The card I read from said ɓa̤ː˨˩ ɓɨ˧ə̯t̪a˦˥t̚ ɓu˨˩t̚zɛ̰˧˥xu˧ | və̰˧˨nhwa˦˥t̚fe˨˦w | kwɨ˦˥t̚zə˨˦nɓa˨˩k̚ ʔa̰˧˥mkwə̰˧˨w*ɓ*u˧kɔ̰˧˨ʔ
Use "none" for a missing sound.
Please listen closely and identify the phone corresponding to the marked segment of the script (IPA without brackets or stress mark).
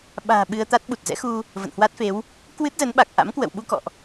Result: ɓ